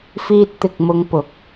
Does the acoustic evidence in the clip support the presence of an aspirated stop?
no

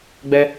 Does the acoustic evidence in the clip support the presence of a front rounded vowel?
no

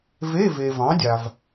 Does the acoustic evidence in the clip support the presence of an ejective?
no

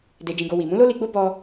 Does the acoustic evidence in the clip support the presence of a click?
no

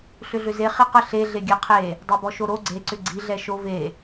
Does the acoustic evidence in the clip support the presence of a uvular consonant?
yes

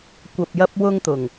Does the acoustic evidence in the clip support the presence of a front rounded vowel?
no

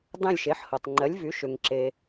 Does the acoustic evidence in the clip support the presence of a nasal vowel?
yes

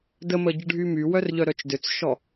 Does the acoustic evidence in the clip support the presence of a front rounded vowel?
yes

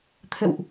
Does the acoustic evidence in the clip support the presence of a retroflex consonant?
no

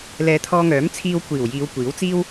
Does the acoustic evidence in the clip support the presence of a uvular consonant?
no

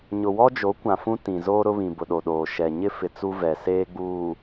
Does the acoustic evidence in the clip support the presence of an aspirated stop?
no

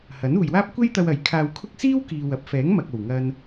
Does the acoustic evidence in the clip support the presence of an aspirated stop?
yes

